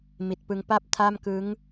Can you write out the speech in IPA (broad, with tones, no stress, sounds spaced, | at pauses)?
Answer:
m i˨˩ t̚ p ɯ˧ ŋ p a˥˩ p̚ tʰ a˥˩ m k ɯ˦˥ ŋ